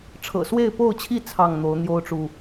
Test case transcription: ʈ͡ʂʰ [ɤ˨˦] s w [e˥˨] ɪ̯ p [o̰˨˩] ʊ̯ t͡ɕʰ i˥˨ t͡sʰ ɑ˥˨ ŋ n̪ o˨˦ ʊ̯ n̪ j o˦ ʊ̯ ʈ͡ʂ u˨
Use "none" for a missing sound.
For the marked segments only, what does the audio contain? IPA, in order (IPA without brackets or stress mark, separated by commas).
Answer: ɤ̰˨˩, e˥˨, o˥˨